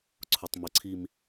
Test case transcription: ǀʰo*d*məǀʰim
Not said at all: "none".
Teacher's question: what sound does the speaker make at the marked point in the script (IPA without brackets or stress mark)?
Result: tˤ